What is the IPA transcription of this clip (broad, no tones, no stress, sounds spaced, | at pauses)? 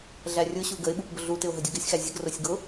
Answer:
ɮ æ rʲ ʊ ɕ u ɡ ə ɪ̯ ɓ u p b ʊ ɮ u t ɪ ʊ̯ ɦ ə dʲ ʊ ɡ ɪ sʲ x æ zʲ ə ɡ r ʊ sʲ ɡ ʊ